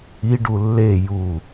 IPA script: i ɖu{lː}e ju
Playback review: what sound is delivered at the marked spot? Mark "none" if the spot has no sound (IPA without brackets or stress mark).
lː